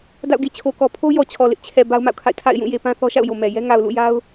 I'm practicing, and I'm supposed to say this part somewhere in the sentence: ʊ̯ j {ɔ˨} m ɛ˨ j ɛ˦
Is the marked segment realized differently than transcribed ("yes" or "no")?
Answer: yes